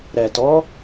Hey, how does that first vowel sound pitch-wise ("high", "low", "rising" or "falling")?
low